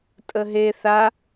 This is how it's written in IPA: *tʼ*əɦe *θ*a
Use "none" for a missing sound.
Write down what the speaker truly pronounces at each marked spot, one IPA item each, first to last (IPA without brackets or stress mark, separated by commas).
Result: tʼ, θ